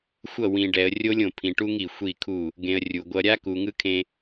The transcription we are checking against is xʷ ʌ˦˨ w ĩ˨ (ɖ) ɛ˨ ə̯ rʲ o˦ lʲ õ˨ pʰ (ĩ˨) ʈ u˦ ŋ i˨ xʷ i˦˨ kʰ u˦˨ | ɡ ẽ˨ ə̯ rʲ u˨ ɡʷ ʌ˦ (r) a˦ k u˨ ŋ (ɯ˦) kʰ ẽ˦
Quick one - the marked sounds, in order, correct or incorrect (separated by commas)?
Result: correct, correct, incorrect, correct